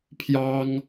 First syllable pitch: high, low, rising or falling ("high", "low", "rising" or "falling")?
high